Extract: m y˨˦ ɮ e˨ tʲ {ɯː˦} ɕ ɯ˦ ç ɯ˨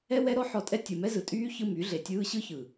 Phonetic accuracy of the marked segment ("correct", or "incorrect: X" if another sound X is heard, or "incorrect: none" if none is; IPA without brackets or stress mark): correct